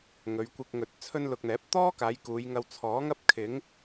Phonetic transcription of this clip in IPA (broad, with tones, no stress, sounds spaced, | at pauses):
ŋ ɵ˨˧ ɥ kʷ ɪ˧ k̚ ŋ ɵ˨ t̚ t͡sʰ ɵ˥ n l ʊ˧ k̚ n̪ ɛː˨˥ p̚ t̪ ɔː˥ k aː˨˧ j k uː˨˧ j ŋ ɐ˧ w t͡sʰ ɔː˨˥ ŋ ɐ˥ p̚ kʰ ɪ˨˥ ŋ